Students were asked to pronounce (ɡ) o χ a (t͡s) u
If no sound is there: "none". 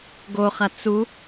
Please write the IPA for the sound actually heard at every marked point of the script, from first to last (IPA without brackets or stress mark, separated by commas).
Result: ɡ, t͡s